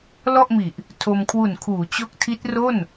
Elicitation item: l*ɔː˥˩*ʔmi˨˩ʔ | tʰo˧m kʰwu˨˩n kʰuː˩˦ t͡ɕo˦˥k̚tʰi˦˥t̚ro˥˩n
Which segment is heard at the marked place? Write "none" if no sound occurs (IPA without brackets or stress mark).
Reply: ɔ˥˩